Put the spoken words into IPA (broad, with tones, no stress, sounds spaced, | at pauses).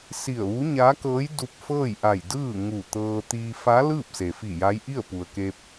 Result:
s i˧˩ ə̯ ʋ u˧˥ ɲ aː˧˥ k ɤː˧˥ j d u˧ p̚ f ɤː˥˨ j ʔ a˧˩ j d ɯː˥˨ ŋ u˧˩ t̪ ɤː˧ t̪ iː˧ f a˧˥ l ɯː˥˨ p̚ s e˩ f i˧˩ j a˧˥ j ʔ i˥˨ ə̯ p u˩ ə̯ k e˧ p̚